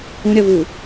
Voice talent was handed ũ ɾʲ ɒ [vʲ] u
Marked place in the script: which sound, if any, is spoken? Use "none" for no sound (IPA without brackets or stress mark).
v